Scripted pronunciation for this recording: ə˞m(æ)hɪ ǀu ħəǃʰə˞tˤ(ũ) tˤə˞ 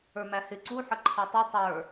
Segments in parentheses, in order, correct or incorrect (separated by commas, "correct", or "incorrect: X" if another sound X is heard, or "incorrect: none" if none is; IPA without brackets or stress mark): correct, incorrect: u